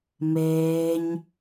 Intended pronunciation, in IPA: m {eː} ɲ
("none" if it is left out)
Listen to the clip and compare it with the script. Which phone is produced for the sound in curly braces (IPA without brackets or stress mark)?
eː